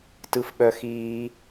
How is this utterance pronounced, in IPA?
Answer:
t ɯ˥ f ɓ œ˥ x iː˥

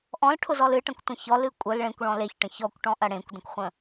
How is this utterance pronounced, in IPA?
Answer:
ʔ ɔ̃ l ʈʰ ʊ z ɔ l ɨ ʈ ɐ̃ kʷ tʷ ə̃ ç ɔ l ɨ kʷʼ ə l ɭ ẽ kʷ ɭ ɔ̃ l e ç ʈ ə̃ ç ɔ kʷ ʈ ɔ̃ ʔ ɐ ɽ ẽ kʷ d ə̃ kʷ χʷ ə̃

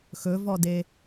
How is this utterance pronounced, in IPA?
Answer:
x ɵ v ɔ d e

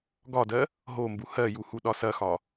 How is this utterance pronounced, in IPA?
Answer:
ɡ ɒ d ɜ | ɦ o m b u h ɜ j u h u ɗ ɒ s ɐ x ɒ

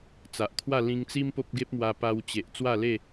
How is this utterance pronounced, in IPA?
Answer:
t͡s a˨ ʔ t̪ʰ w a˥˧ l ĩ˧ ŋ t͡s i˦ m p o˦ p̚ ɡ e˦ p̚ m w a˧ p a˧ w t͡ɕ e˨ ʔ t͡s w a˥˧ l e˥˧

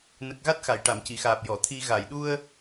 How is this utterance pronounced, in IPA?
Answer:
n ə˨˩ k̚ ɣ a˦˥ t̚ x a˨˩˨ j ʈ a˨˩˨ m c i˨˩˨ x aː˨˩ p̚ j ɔ˨˩˨ t̪ʰ i˧ ɣ a˨˩˨ j ɗ u˧ ə̯

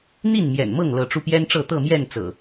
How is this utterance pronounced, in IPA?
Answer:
n̪ i˥˨ n m j ɛ̰˨˩ n m ɤ˥˨ ŋ l ɤ˨˦ ʈ͡ʂ u˧ p j ɛ˦ n ʈ͡ʂ ɤ˥˨ t̪ ɤ˥˨ m j ɛ˥˨ n t͡s ɤ̰˨˩

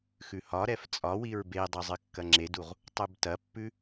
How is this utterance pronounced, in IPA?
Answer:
x ʉ h ɒ ɾ ɛ f t͡sʼ ɒ w i ɹ b e dˤ ɐ zˤ ɨ kː ɐ ŋ͡ǁ e d u ʁ | tˤ u b t ɐ pː ʉ

